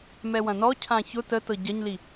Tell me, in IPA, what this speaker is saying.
m ɛ w ɐ̃ n ɔ cʰ ã ç ʊ t ə t ɤ ɟ ɐ ɲ l i

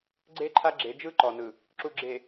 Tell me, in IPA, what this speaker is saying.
ɡ͡ǀ e˦ ǃʰ a˦ ɡ͡ǁ e˨˦ d͡ʒ ɯ˦ ǃ ɔ˨ n ɯ˨ | ǁ u˨ ɡ͡ǁ e˨

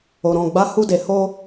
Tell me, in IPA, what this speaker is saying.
o˨ ɾ ɔ̃˨ ɡ͡b a˨˦ h u˧ d e˨ h o˧

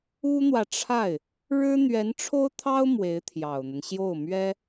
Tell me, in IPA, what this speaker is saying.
u˥ n̪ w ä˨ ʈ͡ʂʰ a˥˩ ɪ̯ | ɻ ɻ̩˥ n̪ ɥ ɛ˧˥ n ʈ͡ʂʰ o˥ ʊ̯ t̪ʰ ɑ˥ ʊ̯ m w e˧˥ ɪ̯ t̪ʰ j ɑ˨˩ ʊ̯ n̪ ə˦ n ɕ j o˥˩ ʊ̯ m ɥ ɛ˥

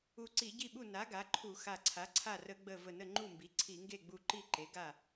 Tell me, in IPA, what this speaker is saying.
u˧˩ ǀ i˧˩˧ ɟ i˥˨ ɓ u˥˨ n a˩˥ ɡ a˩˥ ǃʰ u˧˩˧ x a˧˩ ǀʰ a˩˥ ǀʰ a˥˨ r ə˧˩˧ ɡ͡b ə˧˩ v ə˧˩ n ə˥˨ ŋ͡ǃ u˥˨ m b i˩˥ ǀʰ i˧˩˧ ŋ ɡ e˥˨ ɡ͡b u˧˩ ǃ i˥˨ ǃ e˩˥ ɡ a˥˨

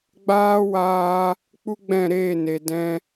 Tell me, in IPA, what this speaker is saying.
ɡ͡b aː˦ w aː˧ | k͡p u˦ ɡ͡b ɛ̃˦˨ ɾ eː˦˨ n e˨ d ɛ̃˧

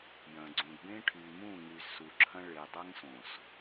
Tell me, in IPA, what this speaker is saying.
j ɐ̃˨ ɡ͡ǀ ũ˨ d b ẽ˦ ʈʰ y˨ m ũ˦˨ ŋ y˨ z s u˨ ǁʰ ɐ̃˦ ɭ e˨ dˤ ɐ˦ ŋ s õ˨ s

